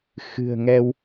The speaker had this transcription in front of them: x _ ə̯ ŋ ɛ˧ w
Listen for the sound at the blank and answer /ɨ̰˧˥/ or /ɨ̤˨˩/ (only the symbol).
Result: ɨ̤˨˩